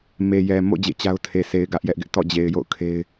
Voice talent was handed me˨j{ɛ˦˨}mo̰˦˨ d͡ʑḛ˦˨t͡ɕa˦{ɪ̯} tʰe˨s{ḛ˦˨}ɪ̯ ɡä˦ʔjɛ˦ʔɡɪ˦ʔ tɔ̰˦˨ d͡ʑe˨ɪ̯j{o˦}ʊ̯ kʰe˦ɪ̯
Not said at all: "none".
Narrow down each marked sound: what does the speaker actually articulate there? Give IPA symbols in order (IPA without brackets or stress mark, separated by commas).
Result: ɛ˨, ʊ̯, e˨, o̰˦˨